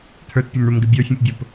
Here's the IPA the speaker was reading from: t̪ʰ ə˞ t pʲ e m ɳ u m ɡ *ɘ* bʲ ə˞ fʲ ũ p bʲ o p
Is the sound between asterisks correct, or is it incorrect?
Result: correct